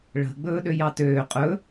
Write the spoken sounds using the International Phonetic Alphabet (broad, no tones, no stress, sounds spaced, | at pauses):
ɭ ə̤ ɡ͡b ɵː ɗ ø j ɑ t øː qʼ ɵ